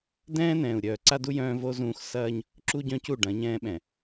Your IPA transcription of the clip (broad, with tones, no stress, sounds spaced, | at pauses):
d ɛ̃ː˦ n ɛ̃ː˨ u̯ ɾʲ œː˨ ǀ a˦ d u˦ j œ̃ː˦ v o˦ z ũː˦ x s ɐː˦ ɲ | ǁ u˦ ɟ œ̃˦ c u˦˨ ɖ ɐ̃˨˦ ɲ ɛ̃ː˦ ɓ ɛ̃˨